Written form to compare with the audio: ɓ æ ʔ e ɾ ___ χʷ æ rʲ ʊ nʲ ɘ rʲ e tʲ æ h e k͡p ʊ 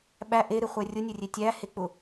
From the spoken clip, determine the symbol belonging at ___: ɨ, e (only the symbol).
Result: ɨ